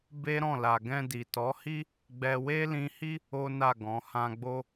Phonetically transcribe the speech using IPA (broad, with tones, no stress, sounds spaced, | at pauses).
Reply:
b e˦ ɾ ɔ̃˦˨ l a˨ ɡ ɛ̃˧ d i˨ t ɔ˨˦ h i˦ | ɡ͡b ɛ˧ w e˦ l ĩ˧ h i˦ | o˦ n a˦˨ ɡ ɔ̃˨˦ h ã˧ ɡ͡b o˦